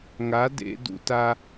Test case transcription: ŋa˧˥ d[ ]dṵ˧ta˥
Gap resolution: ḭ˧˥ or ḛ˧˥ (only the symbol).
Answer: ḛ˧˥